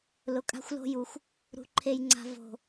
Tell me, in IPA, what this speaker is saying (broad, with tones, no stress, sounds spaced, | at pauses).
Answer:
l ʊ˨ kʼ a̤˦ xʷ l o̤˦ j u˨ xʷ | ɾ ṳ˨ ǃʰ e˨ j ŋ͡ǀ a̤˨ v o̤˨